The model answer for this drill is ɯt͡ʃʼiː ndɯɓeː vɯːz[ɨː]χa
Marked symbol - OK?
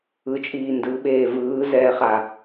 no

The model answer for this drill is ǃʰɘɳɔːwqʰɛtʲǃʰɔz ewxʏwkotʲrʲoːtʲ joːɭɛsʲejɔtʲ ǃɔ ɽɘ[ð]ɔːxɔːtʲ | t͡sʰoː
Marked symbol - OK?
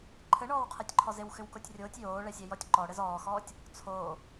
no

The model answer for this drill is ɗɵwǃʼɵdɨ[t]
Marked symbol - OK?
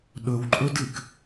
no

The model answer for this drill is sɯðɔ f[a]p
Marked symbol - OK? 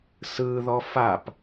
yes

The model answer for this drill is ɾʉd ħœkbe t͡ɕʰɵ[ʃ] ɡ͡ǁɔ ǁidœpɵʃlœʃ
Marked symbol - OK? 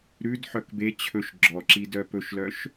yes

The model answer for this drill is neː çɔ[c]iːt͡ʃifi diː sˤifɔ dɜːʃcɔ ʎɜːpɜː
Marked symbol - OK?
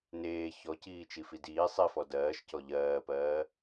yes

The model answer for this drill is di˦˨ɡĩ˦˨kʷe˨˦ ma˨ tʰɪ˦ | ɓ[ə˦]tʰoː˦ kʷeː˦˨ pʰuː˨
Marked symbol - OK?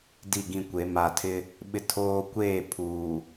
no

